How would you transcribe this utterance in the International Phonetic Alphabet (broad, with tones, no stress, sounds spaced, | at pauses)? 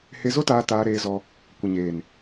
h e˧ z o˦ t aː˧ t aː˧ ɾ eː˧ z ɔ˧ | kʷ ə˨ ɲ eː˨ n